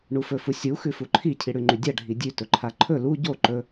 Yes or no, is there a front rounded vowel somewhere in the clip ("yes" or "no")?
no